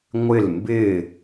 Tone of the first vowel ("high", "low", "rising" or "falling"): falling